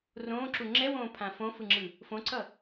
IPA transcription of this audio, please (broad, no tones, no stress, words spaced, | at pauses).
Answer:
rõːǁu ŋ͡ǁɛwõːpʰã fõfɯŋ͡ǁɯ | fõǀʌ